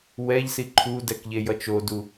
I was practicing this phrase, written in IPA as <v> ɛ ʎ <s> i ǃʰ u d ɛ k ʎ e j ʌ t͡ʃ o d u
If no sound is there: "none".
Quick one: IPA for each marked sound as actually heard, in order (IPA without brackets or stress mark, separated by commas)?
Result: w, s